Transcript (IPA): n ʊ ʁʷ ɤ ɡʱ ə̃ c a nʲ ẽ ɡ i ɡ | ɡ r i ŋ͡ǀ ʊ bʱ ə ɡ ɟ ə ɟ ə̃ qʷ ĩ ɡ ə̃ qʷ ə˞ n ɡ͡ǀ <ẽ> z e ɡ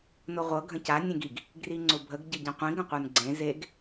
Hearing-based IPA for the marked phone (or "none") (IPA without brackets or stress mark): ẽ